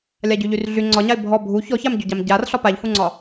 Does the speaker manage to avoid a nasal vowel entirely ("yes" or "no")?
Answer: yes